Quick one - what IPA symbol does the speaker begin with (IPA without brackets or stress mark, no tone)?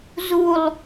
z